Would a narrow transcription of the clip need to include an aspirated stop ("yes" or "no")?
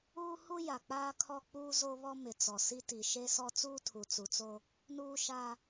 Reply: yes